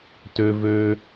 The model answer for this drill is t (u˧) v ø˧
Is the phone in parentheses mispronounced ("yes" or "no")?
yes